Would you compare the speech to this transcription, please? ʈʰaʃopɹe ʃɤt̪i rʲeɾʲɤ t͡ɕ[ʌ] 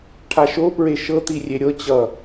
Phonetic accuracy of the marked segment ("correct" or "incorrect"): correct